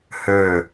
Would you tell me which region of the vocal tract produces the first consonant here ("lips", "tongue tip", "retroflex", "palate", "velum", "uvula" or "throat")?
throat